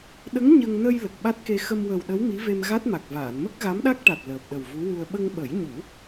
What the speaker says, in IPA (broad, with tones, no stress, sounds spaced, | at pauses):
ɗ ə˧˥ ŋ ɲ ə˧ ŋ n ə˧ j l ə˨˩ k̚ ɓ a˦˥ t̚ k e˧ x ə˧ m w ə˨˩ w ɗ ə˧˥ w m i˧˥ v e˧ m ɣ a˦˥ t̚ m a˨˩ k̚ v aː˨˩˨ n m ə˦˥ k̚ ɣ a˧˥ m ɗ a˦˥ k̚ ʈ a˨˩ t̚ l əː˨˩ p̚ ɗ ə˨˩ w v u˧˥ w u˧ ə̯ ɓ ə˧ ŋ ɓ ə˨˩˦ j ɲ u˨˩˦